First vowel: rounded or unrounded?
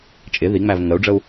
unrounded